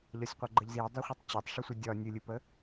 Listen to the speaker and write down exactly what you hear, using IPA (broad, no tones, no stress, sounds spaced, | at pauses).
ʎ ɒ sʲ qʷ ʌ ɡ͡ǃ ə ʎ z i dˤ ɛ χʷ i tˤ t͡ɕ ɒ tˤ ʂ ɨ sʷ ə dʲ ɒ nʲ ɨ lʲ ɨ p ə